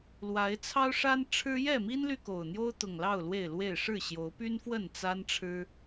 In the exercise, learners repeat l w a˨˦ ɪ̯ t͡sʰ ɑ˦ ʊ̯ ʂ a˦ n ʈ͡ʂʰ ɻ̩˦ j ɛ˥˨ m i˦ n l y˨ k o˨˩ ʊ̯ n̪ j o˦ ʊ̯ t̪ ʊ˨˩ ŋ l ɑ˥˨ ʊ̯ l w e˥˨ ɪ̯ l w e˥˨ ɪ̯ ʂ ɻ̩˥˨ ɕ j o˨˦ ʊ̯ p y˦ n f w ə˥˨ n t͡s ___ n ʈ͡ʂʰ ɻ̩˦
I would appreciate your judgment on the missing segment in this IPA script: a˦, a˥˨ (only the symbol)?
a˦